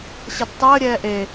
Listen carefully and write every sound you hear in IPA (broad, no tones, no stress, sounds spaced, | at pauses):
ɕ e d tˤ əː ɾʲ ɛː ʔ e